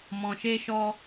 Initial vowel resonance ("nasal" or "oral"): nasal